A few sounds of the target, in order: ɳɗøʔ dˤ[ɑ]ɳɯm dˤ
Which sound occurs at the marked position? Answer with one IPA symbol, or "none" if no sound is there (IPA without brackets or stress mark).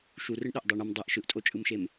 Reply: ɑ